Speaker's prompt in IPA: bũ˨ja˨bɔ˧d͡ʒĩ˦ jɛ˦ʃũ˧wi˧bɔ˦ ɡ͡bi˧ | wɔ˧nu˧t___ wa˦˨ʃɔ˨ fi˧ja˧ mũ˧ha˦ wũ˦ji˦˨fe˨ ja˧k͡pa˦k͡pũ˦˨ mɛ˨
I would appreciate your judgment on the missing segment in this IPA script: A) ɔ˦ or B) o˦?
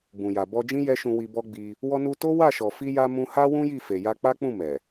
B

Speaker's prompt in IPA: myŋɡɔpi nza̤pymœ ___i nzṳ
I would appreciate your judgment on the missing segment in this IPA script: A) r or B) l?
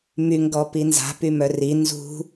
A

